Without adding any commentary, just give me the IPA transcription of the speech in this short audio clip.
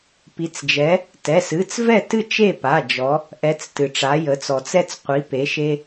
p i˩˧ t͡s d͡ʒ ɛ˩˧ | t ɛ˩˧˩ s ɨ˩˧˩ t͡s v ɛ˥˨ t ɨ˥˨ t͡ʃ e˥˨ p a˩˧˩ d͡ʒ ɔ˩˧ | ʔ ɛ˩˧ t͡s t ɨ˩ ʈ͡ʂ a˩˧ j ə˩˧ t͡s ɔ˩ t͡s ɛ˧ t͡s qʷ i˩˧ p e˩˧ ʃ e˧

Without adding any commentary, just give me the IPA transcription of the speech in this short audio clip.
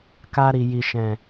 k a˧ ɾ i˨ j i˨ ʃ ɛ̃˨

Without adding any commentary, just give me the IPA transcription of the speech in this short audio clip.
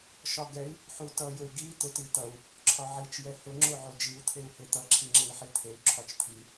ʃ ɒ ɡ ɛ i̯ | ħ u t ʌ j ʊ y̯ ɡ i t̪ ʊ t i t̪ ʌ u̯ | ǁʰ ɒ ʕ i t͡ʃ j ɛ h ʊ ŋ͡ǁ o ʕ o d͡ʒ i u̯ t̪ʰ e u̯ h e t̪ ʌ ǁʰ i ŋ͡ǁ e i̯ ħ i t̪ʰ e u̯ ǁʰ ɒ t͡ʃ t̪ʰ i

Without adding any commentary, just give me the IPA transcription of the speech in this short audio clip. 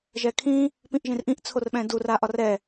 ʒ ɛ kʰ ĩ | p ĩ ʔ ʒ ĩ r ʔ ĩ ʔ t͡sʰ o r ɓ ɛ̃ d u r a ʔ ɒ r ɛ

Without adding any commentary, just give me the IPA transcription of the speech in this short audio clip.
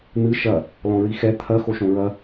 n̪ ɨ ʃ ɐ | l ɔ̃ ɹ i x ɛ t̪ʰ ɐ x o ʃ õ ɹ ɐ

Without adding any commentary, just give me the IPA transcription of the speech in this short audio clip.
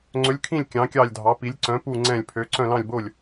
ŋ͡ǀ ɵ˨˥ lʲ kʰ ĩ˦˨ lʲ kʲ ɑ̃˨˥ kʲ ɑ˦˨ lʲ dʱ ɑ˨˥ p i˨˥ lʲ ǀ œ̃˨˥ p u˦˨ ŋ͡ǀ ɛ̃ː˦˨ lʲ pʰ ø˨˥ ǀ œ̃˦˨ l ɑ̃˦˨ lʲ b o˦˨ lʲ

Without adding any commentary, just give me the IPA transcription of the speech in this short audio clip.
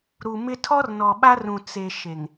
ɾ u˨ m ɪ˦ tʰ ɔ˦ r n ɔ˨ ɓ a˦ r ũ˨ t͡s e˨ ʃ e˨ ŋ

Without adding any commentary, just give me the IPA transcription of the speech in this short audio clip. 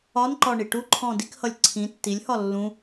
ɒ n ǃ ɒ ɳ i ʈ u ǃʰ ɔ̃ d i k h ʌ lʲ ǀʰ ĩ tː i lʲ h ɒ lː ũ

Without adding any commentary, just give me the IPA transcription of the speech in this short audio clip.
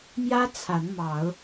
m j ä˦ t͡sʰ a˨˦ n m ɑ˨˦ ʊ̯

